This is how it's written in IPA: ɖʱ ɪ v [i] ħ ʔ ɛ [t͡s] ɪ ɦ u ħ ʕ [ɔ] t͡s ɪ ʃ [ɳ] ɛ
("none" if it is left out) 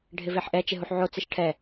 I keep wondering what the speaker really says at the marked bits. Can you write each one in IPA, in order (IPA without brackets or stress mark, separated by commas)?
e, t͡ʃ, o, ʈʰ